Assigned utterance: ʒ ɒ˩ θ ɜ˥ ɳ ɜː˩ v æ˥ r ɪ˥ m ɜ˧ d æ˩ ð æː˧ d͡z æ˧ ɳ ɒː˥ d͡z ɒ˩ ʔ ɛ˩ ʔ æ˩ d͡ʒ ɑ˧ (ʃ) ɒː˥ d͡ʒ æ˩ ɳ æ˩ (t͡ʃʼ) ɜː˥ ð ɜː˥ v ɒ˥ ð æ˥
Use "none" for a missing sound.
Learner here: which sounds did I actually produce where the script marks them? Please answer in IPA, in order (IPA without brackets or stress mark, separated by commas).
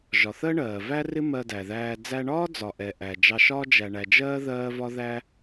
ʃ, d͡ʒ